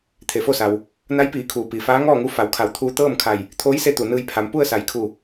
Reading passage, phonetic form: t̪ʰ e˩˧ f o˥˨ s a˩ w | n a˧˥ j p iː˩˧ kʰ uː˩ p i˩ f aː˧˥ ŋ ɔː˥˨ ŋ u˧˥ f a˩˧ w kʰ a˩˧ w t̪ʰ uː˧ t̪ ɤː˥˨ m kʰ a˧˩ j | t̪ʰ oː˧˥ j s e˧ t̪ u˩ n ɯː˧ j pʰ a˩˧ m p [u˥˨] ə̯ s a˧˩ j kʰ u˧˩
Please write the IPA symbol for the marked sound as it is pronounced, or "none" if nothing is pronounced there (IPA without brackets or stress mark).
u˥˨